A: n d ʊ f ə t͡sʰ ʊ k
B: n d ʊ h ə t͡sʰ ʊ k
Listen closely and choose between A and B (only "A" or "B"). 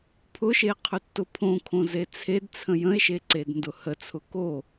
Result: B